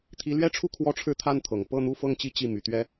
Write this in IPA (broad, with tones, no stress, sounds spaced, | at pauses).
t̪ʰ i˧˥ l ɥ ɛ˥ ʈ͡ʂʰ u˥˧ kʰ w ɔ˥˧ ʈ͡ʂʰ ɻ̩˥˧ t̪ʰ a˥˩ n t̪ʰ ɤ˨˩ ŋ p ɤ˥˧ n̪ u˥˧ f ɤ˥˧ ŋ t͡ɕ i˥˧ t͡ɕ i˥˩ m y˨˩ t̪ ɥ ɛ˥